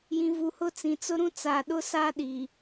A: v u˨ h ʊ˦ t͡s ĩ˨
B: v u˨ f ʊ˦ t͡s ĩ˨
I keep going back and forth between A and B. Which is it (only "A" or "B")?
A